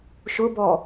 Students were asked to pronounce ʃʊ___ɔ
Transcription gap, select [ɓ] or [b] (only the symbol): b